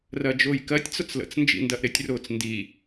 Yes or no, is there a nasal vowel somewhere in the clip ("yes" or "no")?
no